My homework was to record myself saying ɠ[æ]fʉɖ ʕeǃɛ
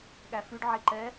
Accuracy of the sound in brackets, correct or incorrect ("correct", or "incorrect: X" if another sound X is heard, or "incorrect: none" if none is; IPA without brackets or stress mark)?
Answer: correct